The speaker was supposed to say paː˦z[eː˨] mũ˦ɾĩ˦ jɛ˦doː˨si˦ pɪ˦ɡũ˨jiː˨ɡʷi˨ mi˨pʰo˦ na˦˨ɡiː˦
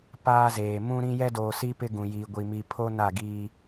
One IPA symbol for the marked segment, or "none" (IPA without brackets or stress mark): eː˨